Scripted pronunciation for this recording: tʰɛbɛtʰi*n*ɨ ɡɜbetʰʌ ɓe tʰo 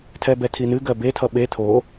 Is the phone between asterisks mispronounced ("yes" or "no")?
no